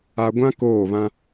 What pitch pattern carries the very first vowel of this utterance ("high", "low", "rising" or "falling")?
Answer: low